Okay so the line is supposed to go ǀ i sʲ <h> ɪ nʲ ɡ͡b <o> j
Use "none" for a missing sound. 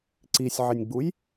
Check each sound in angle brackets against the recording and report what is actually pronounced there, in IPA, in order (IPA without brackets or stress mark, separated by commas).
ʕ, u